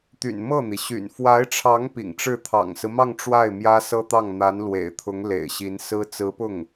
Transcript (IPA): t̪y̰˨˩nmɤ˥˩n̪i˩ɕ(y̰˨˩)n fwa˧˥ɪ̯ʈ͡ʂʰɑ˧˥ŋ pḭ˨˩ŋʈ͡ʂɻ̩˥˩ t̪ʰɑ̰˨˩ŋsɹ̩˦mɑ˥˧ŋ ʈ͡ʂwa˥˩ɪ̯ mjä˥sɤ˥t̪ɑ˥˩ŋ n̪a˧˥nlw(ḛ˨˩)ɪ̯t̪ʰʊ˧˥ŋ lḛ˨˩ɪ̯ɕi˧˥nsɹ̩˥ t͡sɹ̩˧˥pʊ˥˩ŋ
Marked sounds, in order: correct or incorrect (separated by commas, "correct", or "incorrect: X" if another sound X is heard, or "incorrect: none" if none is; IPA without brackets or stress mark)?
correct, correct